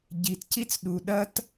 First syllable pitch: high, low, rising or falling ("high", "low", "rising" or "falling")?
low